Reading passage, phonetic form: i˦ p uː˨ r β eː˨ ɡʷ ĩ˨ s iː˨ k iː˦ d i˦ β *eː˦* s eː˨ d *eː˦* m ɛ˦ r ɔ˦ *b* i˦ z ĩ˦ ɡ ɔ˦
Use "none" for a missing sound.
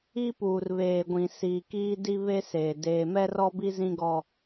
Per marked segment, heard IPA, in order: e˦, eː˨, b

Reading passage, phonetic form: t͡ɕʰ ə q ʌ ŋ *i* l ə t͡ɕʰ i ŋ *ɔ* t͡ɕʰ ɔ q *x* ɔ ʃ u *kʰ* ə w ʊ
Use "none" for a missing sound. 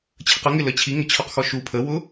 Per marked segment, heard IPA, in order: ɪ, ə, x, pʰ

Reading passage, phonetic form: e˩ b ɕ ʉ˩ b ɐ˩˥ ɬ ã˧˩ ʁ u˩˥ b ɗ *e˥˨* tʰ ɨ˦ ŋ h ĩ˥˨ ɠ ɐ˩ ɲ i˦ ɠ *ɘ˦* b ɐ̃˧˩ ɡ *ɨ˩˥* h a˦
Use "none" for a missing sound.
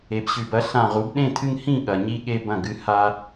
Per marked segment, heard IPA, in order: ẽ˥˨, e˦, ɨ˩˥

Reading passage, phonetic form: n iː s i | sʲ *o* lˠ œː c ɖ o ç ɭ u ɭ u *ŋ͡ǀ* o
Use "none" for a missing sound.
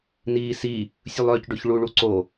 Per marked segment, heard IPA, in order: u, ǀ

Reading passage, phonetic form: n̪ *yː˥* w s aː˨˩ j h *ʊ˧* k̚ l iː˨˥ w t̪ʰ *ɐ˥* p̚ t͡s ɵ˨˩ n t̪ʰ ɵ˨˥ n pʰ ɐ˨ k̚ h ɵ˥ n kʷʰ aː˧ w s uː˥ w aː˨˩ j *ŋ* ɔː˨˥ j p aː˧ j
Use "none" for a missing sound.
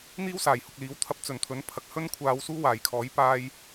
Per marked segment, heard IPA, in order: iː˥, ʊ˨, ɐ˥, kʰ

